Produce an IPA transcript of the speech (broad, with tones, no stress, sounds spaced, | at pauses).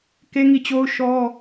k e˦ ŋ i˦˨ t͡ɕ o˦ ʊ̯ ʃ ɔ˦